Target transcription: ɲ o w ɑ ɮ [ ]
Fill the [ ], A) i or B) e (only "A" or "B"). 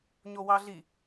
A